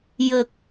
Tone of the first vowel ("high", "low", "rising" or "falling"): low